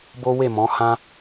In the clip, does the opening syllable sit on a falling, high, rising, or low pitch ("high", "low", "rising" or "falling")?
high